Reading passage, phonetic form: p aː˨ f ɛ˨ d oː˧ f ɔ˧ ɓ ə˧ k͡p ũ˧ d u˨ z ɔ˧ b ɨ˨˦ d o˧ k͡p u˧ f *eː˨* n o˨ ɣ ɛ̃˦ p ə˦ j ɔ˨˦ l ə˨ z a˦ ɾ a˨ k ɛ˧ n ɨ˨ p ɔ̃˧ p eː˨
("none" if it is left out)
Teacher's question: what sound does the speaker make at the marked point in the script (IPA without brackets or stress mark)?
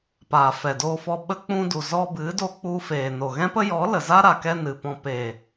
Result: eː˨